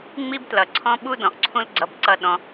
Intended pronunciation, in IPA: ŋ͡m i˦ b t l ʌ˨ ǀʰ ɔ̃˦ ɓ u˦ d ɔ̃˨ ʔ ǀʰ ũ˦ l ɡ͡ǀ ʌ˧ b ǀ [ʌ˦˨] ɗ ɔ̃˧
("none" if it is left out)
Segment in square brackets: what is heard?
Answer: ʌ˦˨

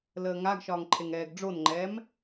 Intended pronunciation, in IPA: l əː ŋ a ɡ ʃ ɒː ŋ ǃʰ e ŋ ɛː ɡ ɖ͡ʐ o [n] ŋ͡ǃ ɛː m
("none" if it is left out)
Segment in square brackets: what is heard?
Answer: n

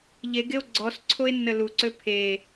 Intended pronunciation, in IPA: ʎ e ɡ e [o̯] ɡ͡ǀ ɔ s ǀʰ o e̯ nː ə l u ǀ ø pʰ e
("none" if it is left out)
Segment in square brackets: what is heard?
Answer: o̯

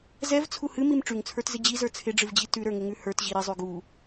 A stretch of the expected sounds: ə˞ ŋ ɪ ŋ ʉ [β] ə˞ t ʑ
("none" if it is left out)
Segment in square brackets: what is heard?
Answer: h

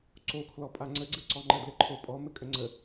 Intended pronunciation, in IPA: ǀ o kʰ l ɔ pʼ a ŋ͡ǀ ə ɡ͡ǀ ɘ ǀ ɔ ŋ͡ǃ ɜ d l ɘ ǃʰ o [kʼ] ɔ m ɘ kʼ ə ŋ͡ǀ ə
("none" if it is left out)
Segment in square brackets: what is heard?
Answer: pʼ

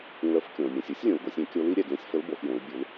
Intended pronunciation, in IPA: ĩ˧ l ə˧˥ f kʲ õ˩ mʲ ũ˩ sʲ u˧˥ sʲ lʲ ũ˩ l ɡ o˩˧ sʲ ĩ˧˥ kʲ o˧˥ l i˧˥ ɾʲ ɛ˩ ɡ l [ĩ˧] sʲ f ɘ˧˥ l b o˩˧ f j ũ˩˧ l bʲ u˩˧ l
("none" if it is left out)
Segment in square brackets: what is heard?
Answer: ĩ˧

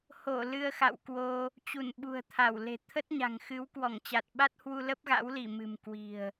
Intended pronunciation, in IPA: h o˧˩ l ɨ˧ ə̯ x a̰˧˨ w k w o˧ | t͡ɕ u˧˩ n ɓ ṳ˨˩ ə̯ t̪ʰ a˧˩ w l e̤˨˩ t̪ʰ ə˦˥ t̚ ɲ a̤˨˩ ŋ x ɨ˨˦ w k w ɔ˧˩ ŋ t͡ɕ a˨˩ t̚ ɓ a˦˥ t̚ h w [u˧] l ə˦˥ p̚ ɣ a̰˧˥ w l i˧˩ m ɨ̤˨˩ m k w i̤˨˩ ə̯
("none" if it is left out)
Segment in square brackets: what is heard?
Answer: u˧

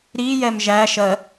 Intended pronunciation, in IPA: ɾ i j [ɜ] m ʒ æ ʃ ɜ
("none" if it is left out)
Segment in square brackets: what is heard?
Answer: ɛ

